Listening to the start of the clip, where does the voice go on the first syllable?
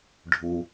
low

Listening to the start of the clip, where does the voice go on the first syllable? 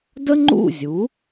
high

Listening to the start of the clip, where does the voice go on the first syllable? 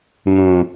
low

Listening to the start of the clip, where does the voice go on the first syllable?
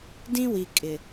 high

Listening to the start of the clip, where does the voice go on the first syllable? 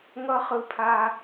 high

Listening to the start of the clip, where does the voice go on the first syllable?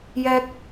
high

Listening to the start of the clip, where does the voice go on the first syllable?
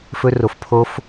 high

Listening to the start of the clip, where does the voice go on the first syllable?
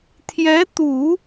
rising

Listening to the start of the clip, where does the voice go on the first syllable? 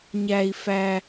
high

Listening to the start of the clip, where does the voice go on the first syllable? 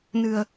low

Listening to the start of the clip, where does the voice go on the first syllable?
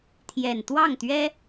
low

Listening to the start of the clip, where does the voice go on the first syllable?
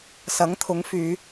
rising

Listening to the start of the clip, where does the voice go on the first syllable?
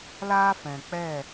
high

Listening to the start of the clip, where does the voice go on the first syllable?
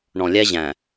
low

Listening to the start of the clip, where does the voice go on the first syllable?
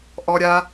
high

